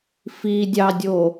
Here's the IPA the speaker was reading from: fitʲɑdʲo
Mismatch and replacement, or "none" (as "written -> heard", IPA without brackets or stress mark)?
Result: tʲ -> dʲ